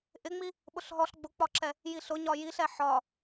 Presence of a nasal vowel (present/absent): absent